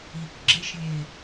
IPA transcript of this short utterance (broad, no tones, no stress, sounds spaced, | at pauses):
i k ɡ͡ǁ e ʃ lʲ e